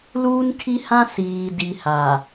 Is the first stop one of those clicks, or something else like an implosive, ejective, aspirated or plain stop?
aspirated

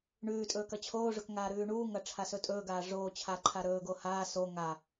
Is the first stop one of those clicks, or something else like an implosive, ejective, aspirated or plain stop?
ejective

